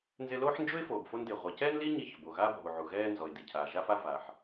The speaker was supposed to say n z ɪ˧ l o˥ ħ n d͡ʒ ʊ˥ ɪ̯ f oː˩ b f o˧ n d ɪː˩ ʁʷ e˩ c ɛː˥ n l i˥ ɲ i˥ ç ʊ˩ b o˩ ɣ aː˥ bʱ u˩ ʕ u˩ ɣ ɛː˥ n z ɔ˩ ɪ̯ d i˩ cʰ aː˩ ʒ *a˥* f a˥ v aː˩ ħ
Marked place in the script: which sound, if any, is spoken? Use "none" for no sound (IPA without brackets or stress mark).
a˥